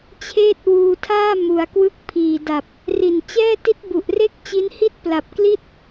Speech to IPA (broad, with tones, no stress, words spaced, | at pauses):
t͡ɕʰeː˥˩t̚wuː˧tʰaː˥˩ mu˩˦a̯kwɯ˦˥k̚pʰiː˨˩da˨˩p̚ | ri˨˩nt͡ɕɛː˥˩ti˦˥t̚ bu˨˩ʔre˥˩k̚t͡ɕi˦˥nhi˥˩t̚ pla˨˩p̚kli˥˩t̚